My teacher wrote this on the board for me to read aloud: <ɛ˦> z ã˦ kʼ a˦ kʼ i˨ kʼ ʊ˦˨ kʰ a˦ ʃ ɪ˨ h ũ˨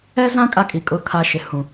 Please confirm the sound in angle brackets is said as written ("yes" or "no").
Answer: yes